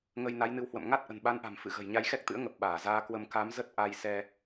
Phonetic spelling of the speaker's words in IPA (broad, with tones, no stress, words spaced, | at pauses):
ŋə˧jna˨˦jnɨ˨˦whwə̰˧˨m ŋa˦˥t̚ʔə̤˨˩nɓa˨˦nʔa̤˨˩m fɨ̰˧˨ɣə̤˨˩j ɲa˧jxɛ˦˥k̚t̪ɨ̰˧˥ə̯ ŋə˨˩p̚ ɓaː˧˩zaː˧kwə˧m ka˨˦mzə˦˥t̚ ʔa˧jsɛ˧